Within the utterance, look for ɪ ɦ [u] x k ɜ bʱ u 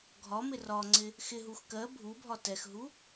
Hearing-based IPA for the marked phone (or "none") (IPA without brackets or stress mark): u